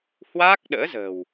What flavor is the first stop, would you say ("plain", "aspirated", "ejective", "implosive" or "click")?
plain